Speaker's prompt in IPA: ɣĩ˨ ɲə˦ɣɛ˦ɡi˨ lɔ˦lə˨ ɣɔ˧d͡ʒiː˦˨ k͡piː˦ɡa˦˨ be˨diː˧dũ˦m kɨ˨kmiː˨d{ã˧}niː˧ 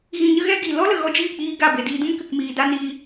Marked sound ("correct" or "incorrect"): incorrect